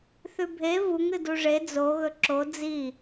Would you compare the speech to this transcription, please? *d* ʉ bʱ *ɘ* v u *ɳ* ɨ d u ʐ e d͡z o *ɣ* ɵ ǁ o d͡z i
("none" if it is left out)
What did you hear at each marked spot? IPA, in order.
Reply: θ, e, ŋ, ɣ

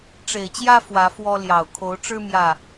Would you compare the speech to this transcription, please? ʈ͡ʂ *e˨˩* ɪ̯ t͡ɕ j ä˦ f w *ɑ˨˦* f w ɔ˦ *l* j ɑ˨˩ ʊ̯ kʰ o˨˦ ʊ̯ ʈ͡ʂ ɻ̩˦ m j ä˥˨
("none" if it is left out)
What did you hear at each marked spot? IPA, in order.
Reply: e˨˩, ä˨˦, l

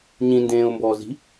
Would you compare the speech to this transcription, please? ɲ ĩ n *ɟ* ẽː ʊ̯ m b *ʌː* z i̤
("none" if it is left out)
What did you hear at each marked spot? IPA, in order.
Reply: d, ɔː

